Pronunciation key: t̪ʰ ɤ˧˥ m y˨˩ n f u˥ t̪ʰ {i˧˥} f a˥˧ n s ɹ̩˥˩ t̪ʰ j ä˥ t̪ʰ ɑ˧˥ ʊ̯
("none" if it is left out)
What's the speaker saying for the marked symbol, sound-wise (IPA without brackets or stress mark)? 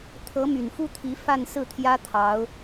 i˧˥